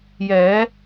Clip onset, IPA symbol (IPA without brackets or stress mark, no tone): j